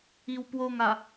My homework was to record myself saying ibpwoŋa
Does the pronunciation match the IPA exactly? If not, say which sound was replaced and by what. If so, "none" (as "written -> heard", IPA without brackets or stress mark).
b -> w